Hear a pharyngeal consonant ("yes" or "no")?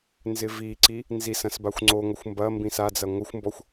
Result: no